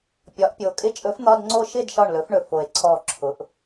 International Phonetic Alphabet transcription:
pʲ ɒ˩˧ ʔ pʲ o˩ kʼ ɪ˥˨ t͡ʃʼ ɵ˧˥ f n̪ ɒ˧˥˧ d ŋ͡ǀ o˥˨ ʃ ɪ˥˨ d ʃ ɒ˧˩ ɳ l ɵ˩˧ f ɳ ɵ˩ f o˩ e̯ ǀʰ ɔ˧˩ ǁʰ ʊ˩˧ ʔ

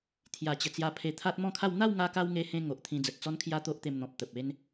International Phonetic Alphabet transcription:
t̪ʰ j a˨˩ t͡ɕ ə˨˩ t͡s j a˧ pʰ e˧ t̪ʰ a˦ t̚ m ɔ̃˥˧ kʰ a˥˧ w n̪ a˥˧ w ŋ a˧ k a˧ w ŋ e˧ h ẽ˧ ŋ o˨ ʔ t̪ʰ ĩ˧ d͡z ə˨ t̚ t͡s ɔ˦ n kʰ j a˦ t̪ o˦ ʔ t̪ e˧ m n̪ ɔ̃˨ p̚ t̪ ə˨ p̚ e˦ n

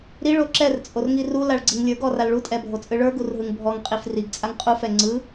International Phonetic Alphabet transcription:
ɾ i ɭ o ǁ ɛ r t͡sʼ o r ŋ i r u l a ɭ ɡ͡ǀ i ŋ lʲ ə˞ ɡ ɔ r a l ɭ u tʼ ɛ bʱ o t͡sʼ ɯ ɭ ə˞ ɡ u r ɦ ɯ ŋ bʱ ɔ ŋ qʼ i f r i ɡ t͡sʼ a ŋ qʼ u f ɛ ŋ͡ǀ ɯ

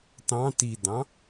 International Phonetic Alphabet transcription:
t ɑ̃ t i d ɑ̃

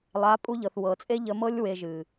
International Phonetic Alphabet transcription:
lˠ a˨˦ pʼ u˧ ʎ ɤ˨ θ w ɤ˨ t͡sʼ e˦ ʎ ə˧ m ɤ˦ lʲ w e˧ ʒ ɨ˨

